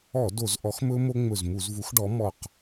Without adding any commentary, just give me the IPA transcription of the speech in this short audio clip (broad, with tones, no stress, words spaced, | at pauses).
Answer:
ɔ˧˩˧ do˧˩˧zʔɔ˨˥xmɵ˦˥ mo˦˥ŋ͡mɵ˧˩zmu˧˩˧zvu˨˥x ɖɔ˨˥mɔ˧˩q